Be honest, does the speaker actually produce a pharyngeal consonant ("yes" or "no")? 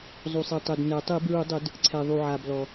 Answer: yes